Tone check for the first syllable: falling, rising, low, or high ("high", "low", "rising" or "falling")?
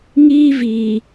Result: high